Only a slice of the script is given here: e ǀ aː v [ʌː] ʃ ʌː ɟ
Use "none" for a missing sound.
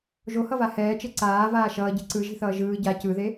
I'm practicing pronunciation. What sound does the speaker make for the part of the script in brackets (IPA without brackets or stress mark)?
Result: aː